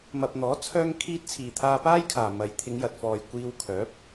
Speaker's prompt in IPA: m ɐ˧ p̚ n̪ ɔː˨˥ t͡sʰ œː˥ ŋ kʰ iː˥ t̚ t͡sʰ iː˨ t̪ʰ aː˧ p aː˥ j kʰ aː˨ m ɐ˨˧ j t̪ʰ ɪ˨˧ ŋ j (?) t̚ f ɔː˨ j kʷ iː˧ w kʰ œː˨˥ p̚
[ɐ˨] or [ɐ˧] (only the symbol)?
ɐ˨